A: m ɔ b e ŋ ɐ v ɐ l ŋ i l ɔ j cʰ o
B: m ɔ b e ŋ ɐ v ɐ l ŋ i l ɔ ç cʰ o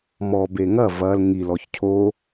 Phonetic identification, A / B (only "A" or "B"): B